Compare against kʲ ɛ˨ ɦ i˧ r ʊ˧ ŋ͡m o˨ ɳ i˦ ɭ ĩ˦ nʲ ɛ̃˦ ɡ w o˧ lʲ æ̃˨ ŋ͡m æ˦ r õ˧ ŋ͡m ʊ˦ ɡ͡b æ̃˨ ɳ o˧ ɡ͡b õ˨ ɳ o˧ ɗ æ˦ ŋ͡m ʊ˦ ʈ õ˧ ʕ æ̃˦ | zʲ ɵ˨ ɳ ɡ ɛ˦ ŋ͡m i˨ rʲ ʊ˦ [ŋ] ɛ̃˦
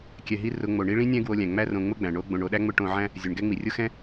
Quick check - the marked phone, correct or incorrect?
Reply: incorrect